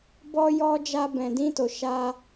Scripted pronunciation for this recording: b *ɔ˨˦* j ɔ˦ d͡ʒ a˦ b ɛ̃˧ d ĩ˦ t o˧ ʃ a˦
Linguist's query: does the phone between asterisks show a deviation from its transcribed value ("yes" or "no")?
yes